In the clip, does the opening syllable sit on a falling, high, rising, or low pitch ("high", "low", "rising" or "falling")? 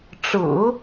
low